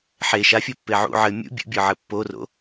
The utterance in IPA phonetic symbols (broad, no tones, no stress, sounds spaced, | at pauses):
ħ e ʃ a fʲ ɔ pː e ʕ ṵ ʕ ɘ mʲ ṵ bʲ ṵ bʲ ɔ ʕ ɘ pː o r o̰